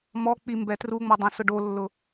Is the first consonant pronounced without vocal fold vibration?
no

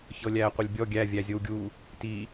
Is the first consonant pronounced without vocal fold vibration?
yes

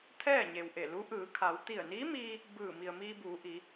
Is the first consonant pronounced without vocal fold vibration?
yes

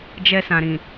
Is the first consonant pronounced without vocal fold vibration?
no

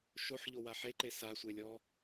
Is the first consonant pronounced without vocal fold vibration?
yes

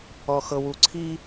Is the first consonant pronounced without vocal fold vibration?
yes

